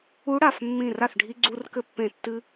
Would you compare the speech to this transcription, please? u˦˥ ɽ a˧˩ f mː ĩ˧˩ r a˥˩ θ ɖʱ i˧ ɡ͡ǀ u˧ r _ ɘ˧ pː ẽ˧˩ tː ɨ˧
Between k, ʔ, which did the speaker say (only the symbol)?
k